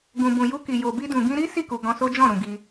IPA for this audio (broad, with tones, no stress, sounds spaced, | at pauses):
ɡ ũ˨ b ũ˨ j u˧ k i˨ j o˨ b i˧ d ũ˨ ɡ ĩ˧ ɾ i˦ s i˦˨ k u˨ ɡ ɔ̃˧ s o˦ d͡ʒ ɔ̃˦˨ ɾ ũ˨ ɡ i˧